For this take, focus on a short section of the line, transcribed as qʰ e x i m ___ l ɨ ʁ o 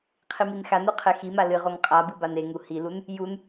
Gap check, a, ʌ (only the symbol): a